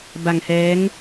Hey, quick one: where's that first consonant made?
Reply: lips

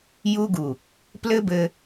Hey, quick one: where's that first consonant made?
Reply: palate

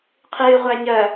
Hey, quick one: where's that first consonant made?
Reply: uvula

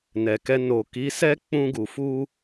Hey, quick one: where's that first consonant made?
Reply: tongue tip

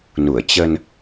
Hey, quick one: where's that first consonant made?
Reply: tongue tip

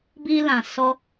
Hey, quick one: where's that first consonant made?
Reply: lips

